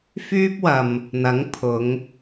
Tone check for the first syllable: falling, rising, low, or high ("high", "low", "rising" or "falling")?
high